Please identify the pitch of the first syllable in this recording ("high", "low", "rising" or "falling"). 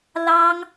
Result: high